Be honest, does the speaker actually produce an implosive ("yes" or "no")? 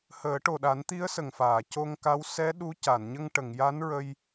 yes